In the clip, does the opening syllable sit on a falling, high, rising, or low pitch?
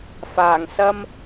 low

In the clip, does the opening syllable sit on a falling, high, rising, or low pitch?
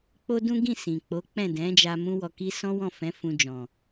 high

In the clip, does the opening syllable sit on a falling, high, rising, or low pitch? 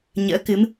rising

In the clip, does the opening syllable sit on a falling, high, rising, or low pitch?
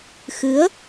rising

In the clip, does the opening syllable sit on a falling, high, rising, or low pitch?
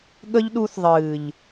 high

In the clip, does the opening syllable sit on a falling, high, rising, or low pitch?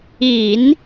low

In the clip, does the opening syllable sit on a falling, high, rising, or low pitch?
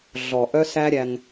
low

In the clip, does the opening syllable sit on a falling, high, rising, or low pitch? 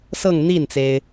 falling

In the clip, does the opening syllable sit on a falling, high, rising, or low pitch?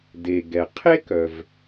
low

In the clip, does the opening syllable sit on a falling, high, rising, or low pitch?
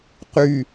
low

